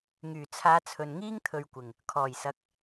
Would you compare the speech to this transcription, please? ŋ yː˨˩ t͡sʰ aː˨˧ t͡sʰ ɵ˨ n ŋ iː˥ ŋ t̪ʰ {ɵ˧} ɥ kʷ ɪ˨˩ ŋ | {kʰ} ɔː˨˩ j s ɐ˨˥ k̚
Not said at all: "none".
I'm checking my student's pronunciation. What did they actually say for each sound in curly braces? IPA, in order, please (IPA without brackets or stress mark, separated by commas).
ɵ˨, kʰ